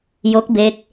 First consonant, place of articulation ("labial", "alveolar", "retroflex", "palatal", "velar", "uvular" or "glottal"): palatal